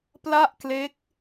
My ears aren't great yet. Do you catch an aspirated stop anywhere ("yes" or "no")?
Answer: no